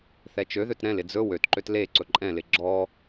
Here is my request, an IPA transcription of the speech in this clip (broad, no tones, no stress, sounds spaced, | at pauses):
θ ɛ t͡ʃ ø ð ø t ɾ ɛ̃ l ɪ d͡z ɵ w ø t ǃ ø t l e ǀ ɵ ǃʼ ɛ̃ l ɪ ɡ͡ǁ ɔ